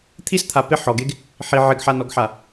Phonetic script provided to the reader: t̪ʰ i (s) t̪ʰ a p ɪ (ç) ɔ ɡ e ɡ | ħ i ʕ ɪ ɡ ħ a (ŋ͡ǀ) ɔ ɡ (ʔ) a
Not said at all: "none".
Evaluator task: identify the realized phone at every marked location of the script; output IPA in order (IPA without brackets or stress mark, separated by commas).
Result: s, ħ, n, ħ